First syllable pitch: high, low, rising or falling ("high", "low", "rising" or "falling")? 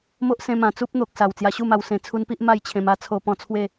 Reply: high